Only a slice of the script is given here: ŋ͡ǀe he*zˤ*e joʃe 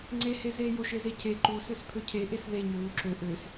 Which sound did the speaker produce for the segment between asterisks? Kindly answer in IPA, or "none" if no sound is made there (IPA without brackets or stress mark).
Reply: z